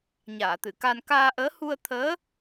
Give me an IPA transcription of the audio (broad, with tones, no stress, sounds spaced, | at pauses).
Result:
ɲ aː˨˩˨ t̪ ɨ˨˩˨ k a˧ n k aː˧ ʔ əː˧˥ h u˧ ə̯ t̪ʰ əː˧˥